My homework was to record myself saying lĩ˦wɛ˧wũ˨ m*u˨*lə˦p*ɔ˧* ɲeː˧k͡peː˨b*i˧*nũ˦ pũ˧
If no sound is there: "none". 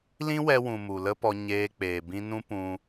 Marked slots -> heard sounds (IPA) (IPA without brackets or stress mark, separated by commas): u˨, ɔ˧, ĩ˧